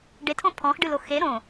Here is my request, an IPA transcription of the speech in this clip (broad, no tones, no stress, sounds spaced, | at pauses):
ɖ e tʰ õ pʰ ɔ̃ x ɖ ɨ l o x e ɾ õ